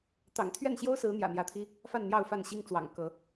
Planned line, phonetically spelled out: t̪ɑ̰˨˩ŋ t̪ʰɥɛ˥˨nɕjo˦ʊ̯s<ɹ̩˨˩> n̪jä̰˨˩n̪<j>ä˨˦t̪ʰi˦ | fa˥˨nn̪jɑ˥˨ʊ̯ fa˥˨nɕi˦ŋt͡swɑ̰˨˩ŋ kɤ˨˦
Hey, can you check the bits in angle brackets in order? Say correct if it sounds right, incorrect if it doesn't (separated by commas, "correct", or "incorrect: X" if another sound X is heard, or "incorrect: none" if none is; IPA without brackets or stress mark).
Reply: incorrect: ɹ̩˨˦, correct